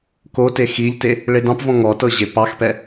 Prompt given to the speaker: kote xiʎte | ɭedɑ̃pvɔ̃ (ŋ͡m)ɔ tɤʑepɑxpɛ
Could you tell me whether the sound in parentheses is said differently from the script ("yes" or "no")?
yes